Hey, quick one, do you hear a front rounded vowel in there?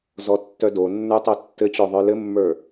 yes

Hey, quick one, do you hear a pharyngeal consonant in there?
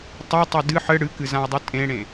yes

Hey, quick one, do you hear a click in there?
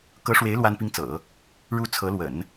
no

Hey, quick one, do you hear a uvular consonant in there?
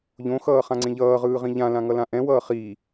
yes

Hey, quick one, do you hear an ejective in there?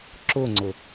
no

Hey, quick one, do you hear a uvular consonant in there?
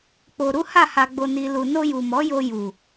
no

